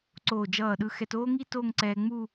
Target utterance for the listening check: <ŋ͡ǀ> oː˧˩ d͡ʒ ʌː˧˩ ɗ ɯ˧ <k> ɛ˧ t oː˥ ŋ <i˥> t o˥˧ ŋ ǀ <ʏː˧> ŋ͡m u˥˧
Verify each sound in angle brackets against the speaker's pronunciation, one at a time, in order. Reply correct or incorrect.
incorrect, incorrect, correct, incorrect

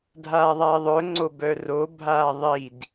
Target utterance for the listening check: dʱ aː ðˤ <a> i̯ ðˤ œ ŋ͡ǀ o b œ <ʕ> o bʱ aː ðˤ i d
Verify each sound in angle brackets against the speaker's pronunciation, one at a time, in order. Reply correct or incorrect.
correct, incorrect

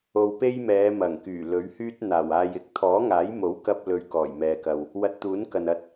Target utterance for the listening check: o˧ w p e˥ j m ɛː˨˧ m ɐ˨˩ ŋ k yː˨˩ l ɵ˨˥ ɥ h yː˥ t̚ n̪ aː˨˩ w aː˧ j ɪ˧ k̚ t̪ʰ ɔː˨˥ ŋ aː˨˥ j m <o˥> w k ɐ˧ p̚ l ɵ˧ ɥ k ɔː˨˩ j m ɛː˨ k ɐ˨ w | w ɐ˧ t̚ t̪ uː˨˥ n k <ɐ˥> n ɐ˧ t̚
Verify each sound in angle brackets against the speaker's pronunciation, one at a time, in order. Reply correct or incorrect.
incorrect, incorrect

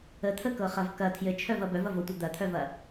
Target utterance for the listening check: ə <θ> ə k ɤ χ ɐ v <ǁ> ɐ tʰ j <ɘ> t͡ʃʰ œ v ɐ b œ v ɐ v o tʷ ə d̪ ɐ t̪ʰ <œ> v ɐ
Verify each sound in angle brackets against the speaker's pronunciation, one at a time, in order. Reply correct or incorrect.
incorrect, incorrect, correct, correct

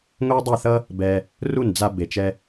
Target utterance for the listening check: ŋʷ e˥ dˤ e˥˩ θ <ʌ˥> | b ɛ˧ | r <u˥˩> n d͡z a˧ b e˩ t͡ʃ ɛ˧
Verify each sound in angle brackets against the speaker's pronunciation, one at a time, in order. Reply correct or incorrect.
correct, correct

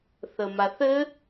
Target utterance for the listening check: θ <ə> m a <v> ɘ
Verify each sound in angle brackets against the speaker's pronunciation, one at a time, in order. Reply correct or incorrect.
correct, incorrect

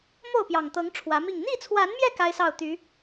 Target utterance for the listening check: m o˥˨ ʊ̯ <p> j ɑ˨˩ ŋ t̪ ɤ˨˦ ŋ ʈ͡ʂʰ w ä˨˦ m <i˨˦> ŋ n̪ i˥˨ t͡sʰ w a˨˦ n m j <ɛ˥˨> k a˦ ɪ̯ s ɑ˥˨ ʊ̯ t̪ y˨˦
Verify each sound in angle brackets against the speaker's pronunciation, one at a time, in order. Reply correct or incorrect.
correct, incorrect, incorrect

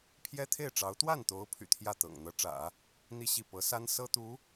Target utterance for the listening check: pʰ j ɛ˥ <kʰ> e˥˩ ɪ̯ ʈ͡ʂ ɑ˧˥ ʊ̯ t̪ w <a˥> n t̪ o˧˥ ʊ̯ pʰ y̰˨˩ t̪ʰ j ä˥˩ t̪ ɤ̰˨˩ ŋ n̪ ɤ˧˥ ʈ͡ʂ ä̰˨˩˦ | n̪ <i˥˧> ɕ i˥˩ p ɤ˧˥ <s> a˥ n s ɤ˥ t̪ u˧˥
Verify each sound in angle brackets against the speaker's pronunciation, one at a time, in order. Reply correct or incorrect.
incorrect, incorrect, correct, correct

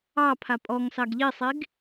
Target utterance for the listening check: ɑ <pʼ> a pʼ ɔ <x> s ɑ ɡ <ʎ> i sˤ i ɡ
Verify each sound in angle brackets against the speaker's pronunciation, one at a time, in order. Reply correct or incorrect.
incorrect, incorrect, correct

